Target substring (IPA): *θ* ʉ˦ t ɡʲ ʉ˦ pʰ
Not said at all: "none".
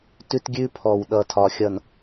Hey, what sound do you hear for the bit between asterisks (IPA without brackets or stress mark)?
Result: t